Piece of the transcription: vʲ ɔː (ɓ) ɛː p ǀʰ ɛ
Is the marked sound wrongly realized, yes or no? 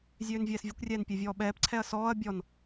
no